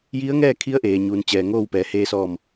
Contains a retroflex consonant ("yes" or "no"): no